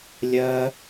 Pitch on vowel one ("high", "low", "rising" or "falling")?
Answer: high